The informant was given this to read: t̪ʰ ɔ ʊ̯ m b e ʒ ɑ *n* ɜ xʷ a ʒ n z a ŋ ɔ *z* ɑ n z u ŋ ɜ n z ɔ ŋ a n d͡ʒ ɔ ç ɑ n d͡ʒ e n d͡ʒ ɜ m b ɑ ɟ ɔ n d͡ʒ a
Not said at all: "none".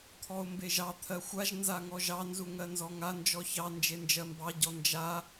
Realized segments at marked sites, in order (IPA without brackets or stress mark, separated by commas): t̪ʰ, ʒ